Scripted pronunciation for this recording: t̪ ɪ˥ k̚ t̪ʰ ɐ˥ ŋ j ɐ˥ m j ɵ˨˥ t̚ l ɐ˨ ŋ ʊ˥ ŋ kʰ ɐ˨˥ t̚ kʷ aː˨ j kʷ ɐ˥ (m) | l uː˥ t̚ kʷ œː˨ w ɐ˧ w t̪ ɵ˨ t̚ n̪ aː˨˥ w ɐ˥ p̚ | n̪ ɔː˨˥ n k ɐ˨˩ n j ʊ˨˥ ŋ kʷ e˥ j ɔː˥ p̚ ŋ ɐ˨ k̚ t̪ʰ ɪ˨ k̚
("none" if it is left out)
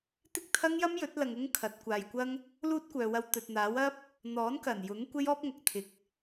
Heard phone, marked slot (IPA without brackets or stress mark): ŋ